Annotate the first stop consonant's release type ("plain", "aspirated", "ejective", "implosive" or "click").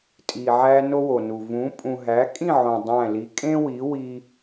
ejective